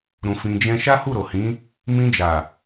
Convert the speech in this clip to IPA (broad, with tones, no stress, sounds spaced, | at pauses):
ɾ ũ˧ f ĩ˧ d͡ʒ ɛ̃˦ ʃ a˦ h u˦˨ ɾ o˨ h ĩ˨˦ | m ĩ˧ d͡ʒ a˨